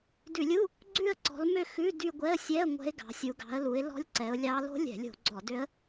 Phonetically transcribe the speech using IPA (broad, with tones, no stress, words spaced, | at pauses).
dʉ˧˩˧lʲu˧˥˧ | ɡ͡ǀʉ˥˧ə̯ǀɔ̤˨˦l mø˥˧xʉ˧˥˧ dy˥˧ ɡʷɛ˧˥˧ə̯sʲɛ˧˥˧ə̯ ŋʷɛ̤˦˥ɪ̯ɡɑ̤˨˦sʲu˨˦ ɡɑ̤˨˦ə̯lu˨˦ɪ̯ lɔ̤˦˥lʲǀɛ˨˦ʊ̯ lʲɑ˦˥ lo̤˦˥lʲɛ̤˧˩˧ lʲo̤˧˩˧ɡ͡ǀɔ˧˩˧dø˦˥ə̯